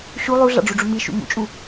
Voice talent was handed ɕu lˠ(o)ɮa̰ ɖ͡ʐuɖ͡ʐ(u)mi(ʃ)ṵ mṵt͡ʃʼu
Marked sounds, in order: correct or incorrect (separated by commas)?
incorrect, correct, correct